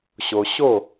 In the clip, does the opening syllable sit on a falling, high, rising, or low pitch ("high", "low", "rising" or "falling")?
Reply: low